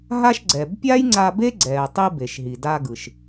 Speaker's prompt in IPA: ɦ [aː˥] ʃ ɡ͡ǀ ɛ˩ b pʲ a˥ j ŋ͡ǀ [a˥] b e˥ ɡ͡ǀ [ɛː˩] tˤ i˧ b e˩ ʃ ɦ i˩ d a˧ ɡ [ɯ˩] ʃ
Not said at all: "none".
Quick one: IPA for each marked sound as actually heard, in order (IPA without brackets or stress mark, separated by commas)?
a˥, a˧, ɛː˩, ɯ˩